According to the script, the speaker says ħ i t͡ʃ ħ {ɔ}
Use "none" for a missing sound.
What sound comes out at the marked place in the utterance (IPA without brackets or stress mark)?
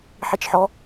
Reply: ɔ